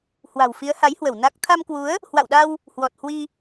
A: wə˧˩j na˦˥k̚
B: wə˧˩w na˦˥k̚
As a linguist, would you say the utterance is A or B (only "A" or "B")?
B